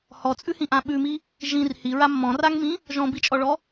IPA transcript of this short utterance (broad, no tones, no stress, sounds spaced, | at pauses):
h ɔ t͡sʼ ʉ h ĩ ʔ ã ɓ ʉ m i | ʒ ĩ r h i ɹ a mː ɔ̃ r a ŋ m ĩ | ʒ ɔ̃ b i t͡ʃʼ ɔ ɭ ɔ